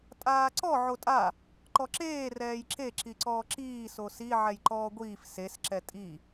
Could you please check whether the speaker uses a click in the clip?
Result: yes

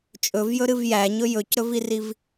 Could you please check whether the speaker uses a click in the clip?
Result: no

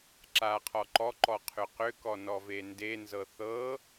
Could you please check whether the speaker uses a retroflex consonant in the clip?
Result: no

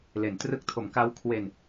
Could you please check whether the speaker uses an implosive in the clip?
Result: no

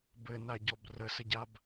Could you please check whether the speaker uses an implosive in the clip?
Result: no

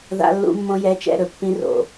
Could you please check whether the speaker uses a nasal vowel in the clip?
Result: yes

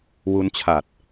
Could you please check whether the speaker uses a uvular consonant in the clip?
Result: no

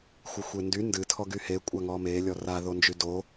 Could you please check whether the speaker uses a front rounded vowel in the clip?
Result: yes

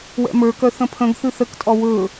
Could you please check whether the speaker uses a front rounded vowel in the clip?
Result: yes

